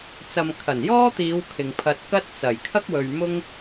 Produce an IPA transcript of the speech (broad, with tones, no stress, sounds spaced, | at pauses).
t͡s ɐ˨ m kʰ ɐ˨˩ n j ɔː˥ t̪ iː˨˧ w kʰ ɪ˨ ŋ pʰ ɐ˧ t̚ k ɐ˥ t̚ t͡s ɐ˨˩ j kʰ ɐ˥ k̚ w ɵ˨ ɥ m ʊ˥ ŋ